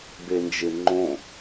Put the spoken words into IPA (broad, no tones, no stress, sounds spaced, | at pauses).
b e n d͡ʒ ɪ ŋ͡ǃ õ